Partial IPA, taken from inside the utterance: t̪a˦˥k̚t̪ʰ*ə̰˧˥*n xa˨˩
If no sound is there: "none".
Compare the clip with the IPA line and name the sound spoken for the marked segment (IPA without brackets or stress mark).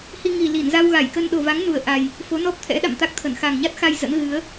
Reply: ə˧˩